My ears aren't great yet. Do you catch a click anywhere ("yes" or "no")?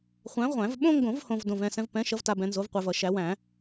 no